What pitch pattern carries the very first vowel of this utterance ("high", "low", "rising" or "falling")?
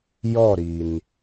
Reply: falling